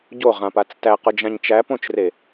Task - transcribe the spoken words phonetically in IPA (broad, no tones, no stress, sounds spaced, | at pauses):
ɟ o ʁ ã p a t͡s t æ q ʊ d͡ʒ ã ɲ t͡ʃ æ p õ t͡ʃ r e